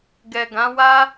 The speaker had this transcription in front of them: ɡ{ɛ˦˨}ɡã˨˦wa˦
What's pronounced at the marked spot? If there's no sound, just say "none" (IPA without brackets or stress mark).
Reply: ɛ˨